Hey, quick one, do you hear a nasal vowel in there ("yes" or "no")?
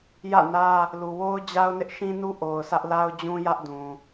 yes